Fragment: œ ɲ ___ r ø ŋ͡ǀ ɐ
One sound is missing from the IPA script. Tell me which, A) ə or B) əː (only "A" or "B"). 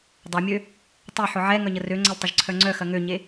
A